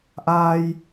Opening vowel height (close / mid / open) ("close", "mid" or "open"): open